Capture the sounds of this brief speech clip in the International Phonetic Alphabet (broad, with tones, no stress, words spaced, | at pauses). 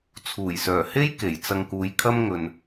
t͡sʰuː˨˩jsœː˨˩he˥j ke˨˩jt͡sɐ˧ŋkuː˨˧jkʰɐ˥m ŋɵ˨n